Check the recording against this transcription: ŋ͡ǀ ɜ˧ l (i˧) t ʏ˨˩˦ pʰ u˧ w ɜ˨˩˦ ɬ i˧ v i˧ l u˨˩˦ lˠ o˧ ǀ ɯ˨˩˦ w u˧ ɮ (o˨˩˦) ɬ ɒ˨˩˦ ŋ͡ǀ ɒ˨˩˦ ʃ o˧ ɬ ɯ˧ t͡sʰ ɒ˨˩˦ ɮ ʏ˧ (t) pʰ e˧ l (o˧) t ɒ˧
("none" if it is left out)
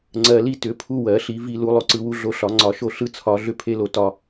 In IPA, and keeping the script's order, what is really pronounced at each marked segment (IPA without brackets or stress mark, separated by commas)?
i˧, o˧, none, o˧